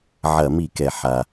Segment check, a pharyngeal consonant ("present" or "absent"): present